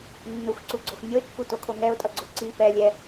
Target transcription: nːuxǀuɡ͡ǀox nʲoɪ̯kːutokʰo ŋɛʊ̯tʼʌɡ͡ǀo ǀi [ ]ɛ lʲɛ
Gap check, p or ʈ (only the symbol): p